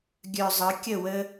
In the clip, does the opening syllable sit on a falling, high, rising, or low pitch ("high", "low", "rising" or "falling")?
low